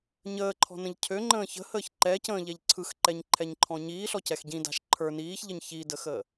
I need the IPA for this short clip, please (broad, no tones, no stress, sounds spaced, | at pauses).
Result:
ɲ əː ǃʰ ɔ̤ n ə̃ ʎ cʰ ø ŋ͡ǃ ə̃ː ç ə̤ h əː ç ǃ ɛ c ə̃ː ʎ ɛ ʎ ǀʰ ɯ x ǃ ɛ ɲ ǃʰ ɛ ɲ ǃʰ ɔ̃ ɲ iː ɬ ɔ c ɛ x ɟ ĩ d a̤ ʃ ǃʰ ə˞ n iː ç ʎ ə ɲ ç i d ə x əː